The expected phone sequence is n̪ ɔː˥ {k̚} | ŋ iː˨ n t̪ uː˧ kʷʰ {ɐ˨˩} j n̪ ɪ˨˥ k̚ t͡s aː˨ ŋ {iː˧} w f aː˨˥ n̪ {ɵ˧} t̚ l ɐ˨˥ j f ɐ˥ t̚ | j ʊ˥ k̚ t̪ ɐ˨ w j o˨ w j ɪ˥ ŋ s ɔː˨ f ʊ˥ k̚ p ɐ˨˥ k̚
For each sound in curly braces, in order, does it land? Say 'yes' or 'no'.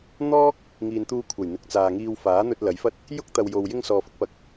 yes, yes, yes, yes

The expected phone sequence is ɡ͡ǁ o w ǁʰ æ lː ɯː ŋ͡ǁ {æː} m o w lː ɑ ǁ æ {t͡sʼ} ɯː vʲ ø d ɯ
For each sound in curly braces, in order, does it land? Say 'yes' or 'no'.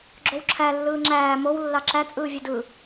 yes, yes

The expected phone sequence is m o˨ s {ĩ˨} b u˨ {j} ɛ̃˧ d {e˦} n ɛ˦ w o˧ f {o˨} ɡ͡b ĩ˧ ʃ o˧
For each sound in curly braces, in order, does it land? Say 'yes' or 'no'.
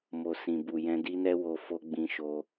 yes, yes, no, no

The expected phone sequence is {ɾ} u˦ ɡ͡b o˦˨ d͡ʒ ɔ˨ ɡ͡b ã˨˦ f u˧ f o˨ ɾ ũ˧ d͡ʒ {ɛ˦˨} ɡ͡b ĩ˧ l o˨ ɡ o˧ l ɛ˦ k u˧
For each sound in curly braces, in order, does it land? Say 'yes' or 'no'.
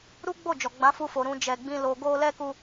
yes, no

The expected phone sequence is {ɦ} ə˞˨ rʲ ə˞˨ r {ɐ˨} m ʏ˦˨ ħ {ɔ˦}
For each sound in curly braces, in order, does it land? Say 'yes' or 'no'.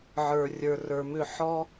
no, no, yes

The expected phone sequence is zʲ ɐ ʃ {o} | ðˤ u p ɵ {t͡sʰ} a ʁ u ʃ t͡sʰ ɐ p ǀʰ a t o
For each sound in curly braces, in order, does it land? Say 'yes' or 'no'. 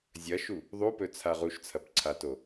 no, yes

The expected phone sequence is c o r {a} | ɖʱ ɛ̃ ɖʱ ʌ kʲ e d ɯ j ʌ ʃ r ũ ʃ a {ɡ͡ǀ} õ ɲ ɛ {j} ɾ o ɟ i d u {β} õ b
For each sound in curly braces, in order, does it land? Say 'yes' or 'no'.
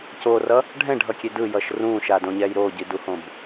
no, no, yes, no

